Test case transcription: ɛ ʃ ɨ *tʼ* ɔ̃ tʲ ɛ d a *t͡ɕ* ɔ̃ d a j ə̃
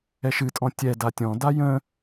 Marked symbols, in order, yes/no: yes, no

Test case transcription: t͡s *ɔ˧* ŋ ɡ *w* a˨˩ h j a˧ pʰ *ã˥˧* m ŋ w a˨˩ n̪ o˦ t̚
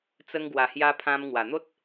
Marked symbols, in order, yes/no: no, yes, no

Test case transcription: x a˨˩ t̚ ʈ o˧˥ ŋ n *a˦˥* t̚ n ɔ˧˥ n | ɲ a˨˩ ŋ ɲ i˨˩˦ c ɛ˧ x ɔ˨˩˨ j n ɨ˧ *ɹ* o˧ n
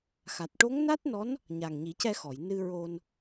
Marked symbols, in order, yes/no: yes, yes

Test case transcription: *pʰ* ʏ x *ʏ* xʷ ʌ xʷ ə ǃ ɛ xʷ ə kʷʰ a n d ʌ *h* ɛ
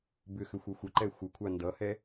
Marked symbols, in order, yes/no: no, yes, yes

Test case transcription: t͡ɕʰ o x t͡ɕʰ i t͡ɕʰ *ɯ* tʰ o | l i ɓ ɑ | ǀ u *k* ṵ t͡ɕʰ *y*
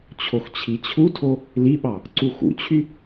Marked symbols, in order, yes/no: no, no, yes

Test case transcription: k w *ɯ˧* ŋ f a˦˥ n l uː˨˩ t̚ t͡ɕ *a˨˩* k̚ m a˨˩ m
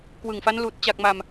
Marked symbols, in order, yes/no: no, yes

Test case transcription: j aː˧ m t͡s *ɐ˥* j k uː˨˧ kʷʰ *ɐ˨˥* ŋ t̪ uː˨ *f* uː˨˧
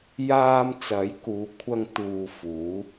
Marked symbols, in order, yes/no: no, no, yes

